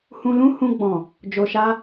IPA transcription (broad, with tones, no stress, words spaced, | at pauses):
hũ˧ lũ˦ hũ˧ ɡ͡bɔ̃˨ | d͡ʒo˨ʃa˧